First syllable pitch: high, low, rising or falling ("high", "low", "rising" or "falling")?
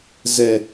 low